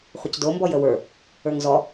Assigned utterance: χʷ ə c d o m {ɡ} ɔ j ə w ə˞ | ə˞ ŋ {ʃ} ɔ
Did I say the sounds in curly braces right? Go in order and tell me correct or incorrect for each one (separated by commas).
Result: incorrect, incorrect